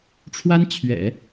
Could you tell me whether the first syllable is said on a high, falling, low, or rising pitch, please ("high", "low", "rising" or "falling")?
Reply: high